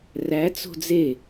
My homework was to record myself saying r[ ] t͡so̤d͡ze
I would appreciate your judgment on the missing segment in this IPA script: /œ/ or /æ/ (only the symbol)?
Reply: æ